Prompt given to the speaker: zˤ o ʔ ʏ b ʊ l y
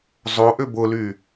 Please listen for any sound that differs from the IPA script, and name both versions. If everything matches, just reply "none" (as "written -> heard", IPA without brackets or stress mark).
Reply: none